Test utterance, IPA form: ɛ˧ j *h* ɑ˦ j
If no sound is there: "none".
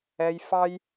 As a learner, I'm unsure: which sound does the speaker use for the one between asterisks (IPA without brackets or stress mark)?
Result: f